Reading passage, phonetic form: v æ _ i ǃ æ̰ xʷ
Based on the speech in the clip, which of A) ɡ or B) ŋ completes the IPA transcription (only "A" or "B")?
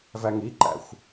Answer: B